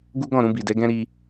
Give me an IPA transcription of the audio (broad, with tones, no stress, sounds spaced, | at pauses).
ɡ u˦ ɡ ɔ̃˦˨ ɾ ũ˧ b i˨ d ɛ˨˦ ɡ ɛ̃˦ ɾ i˧